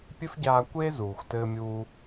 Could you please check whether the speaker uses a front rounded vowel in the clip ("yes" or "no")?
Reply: no